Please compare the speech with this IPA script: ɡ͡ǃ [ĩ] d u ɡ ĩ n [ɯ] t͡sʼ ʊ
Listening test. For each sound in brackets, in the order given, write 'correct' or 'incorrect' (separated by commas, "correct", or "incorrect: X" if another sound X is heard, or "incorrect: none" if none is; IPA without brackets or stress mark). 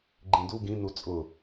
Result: correct, incorrect: u